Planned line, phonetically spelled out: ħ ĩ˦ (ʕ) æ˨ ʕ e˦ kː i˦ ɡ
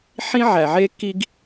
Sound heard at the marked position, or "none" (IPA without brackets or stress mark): ʕ